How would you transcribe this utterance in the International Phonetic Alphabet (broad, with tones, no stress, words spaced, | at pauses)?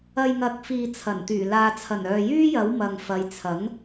ɐ˧jŋɐ˨˥k̚fiː˨t͡sʰɐ˨˩n t̪yː˨˩laː˨ t͡sʰɐ˨˩nœː˨jyː˥jɐ˨˥w mɐ˨ŋfɐ˨˧jt͡sʰɐ˨˥ŋ